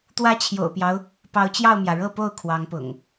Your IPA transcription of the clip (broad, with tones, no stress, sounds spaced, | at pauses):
t̪ w ä˦ t͡ɕʰ j o̰˨˩ ʊ̯ p j ɑ˦ ʊ̯ | p ɑ˨˦ ʊ̯ t͡ɕ j ɑ˥˨ ʊ̯ m j ä˩ ɻ ɤ˥˨ p o˥˨ ʊ̯ kʰ w ɑ˨˦ ŋ p ʊ̰˨˩ ŋ